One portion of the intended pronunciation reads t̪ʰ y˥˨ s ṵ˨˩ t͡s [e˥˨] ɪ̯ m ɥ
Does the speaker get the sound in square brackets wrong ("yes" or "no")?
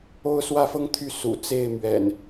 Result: no